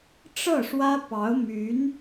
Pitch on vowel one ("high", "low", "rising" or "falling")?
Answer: falling